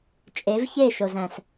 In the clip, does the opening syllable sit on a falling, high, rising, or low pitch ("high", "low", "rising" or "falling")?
rising